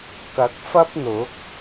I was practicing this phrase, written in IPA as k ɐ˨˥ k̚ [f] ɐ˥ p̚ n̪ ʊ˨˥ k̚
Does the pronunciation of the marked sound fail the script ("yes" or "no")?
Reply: no